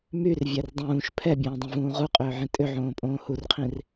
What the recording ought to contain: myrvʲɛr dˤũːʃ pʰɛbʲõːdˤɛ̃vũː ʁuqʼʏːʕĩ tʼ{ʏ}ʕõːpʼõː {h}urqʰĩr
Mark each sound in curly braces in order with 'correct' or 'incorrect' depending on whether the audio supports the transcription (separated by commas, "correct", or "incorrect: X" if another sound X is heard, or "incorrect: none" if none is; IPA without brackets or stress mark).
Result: correct, correct